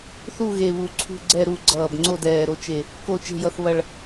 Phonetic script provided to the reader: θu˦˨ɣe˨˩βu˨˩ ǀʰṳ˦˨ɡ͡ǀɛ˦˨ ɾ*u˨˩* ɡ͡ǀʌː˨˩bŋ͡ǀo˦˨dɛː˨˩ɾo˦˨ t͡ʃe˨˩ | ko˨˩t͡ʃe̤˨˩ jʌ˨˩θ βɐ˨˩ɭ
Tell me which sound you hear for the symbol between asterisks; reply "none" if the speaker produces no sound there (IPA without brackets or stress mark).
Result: u˦˨